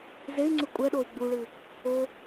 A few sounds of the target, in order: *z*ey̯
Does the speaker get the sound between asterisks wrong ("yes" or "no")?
no